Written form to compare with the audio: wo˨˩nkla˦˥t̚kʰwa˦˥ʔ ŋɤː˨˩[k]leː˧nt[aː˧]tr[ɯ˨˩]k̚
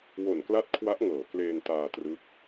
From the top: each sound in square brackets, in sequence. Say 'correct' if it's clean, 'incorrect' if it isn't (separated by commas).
correct, correct, incorrect